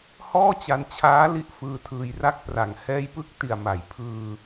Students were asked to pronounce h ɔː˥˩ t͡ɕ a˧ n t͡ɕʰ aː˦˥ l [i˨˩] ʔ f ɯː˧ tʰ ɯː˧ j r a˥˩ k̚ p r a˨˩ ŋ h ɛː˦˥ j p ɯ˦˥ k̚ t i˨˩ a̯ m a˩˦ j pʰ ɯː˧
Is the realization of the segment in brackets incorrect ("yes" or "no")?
yes